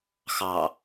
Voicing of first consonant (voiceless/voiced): voiceless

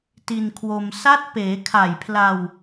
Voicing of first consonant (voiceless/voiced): voiceless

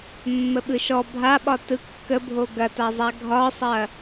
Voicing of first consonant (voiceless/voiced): voiced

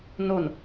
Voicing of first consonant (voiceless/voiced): voiced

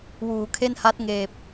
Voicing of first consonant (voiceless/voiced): voiced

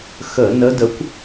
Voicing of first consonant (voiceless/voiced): voiceless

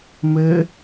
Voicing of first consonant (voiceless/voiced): voiced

